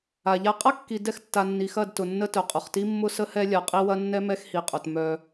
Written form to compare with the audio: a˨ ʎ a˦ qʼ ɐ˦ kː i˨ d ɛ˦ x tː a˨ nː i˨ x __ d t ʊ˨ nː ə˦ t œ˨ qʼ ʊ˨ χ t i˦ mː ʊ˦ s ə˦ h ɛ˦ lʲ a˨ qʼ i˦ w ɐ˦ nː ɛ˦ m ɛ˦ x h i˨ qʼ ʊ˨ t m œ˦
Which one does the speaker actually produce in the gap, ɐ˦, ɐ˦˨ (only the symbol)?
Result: ɐ˦˨